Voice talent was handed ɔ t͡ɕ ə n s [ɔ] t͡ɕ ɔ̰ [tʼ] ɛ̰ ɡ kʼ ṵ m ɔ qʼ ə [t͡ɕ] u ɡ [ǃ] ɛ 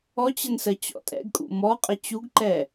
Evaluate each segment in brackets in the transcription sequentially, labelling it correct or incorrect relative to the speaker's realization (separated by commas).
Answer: incorrect, correct, correct, correct